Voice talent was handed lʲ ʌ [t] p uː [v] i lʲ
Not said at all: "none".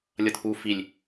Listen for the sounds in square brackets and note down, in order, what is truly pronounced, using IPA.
t, f

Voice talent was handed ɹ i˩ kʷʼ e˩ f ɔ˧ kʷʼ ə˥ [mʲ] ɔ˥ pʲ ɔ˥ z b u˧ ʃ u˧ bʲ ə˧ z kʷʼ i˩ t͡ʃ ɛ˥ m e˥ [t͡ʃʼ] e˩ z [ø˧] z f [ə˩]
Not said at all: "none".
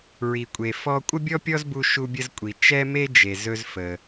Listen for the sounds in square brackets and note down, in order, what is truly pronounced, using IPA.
bʲ, d͡ʒ, ɵ˧, ə˩

